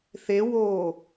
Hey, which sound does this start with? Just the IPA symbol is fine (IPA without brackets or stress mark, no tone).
θ